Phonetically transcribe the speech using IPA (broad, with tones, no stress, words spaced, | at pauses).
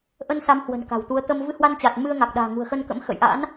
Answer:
ʔə˧nsa˨˦mhwə̤˨˩n ka̤˨˩wt̪u˨˦ə̯ t̪ə˧m vɨ˧hwa˧nt͡ɕa˨˩t̚ mɨ˧ə̯ŋa˨˩k̚ɗa̤ː˨˩ ŋṳ˨˩ə̯xə˧nkə̰˧˥m xə̰˧˨jʔa̰˧˥n